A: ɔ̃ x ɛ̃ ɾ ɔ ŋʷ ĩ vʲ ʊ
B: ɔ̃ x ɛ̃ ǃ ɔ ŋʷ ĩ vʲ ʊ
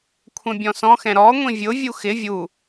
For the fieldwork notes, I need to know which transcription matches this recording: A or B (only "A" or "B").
A